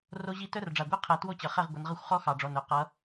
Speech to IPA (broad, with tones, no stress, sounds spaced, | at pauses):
r o˦˥ ʑ i˥˨ t œ˦˥ r ɖ͡ʐ a˨˩ ɡʷ ɛ˥˨ qʰ ɛ˨˦ t w o˥˨ t͡ɕ ʌ˨˩ χ ɛ˥˨ ʁ ɡʷ ʌ˨˦ n ʁ ʌ˥˨ xʷ χ ɔ˦˥ x ɑ˨˩ ɖ͡ʐ ɔ˨˩ n œ˨˩ q ʌ˨˦